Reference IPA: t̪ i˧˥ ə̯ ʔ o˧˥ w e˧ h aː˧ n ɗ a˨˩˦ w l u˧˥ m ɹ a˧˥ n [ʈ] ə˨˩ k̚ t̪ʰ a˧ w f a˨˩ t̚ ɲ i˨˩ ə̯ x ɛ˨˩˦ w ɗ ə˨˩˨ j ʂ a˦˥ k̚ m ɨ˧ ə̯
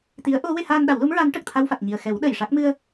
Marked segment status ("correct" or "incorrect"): correct